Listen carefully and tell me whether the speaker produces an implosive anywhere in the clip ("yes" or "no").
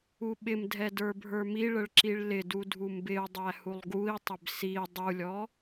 yes